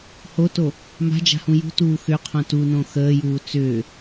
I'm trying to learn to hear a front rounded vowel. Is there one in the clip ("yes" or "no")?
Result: yes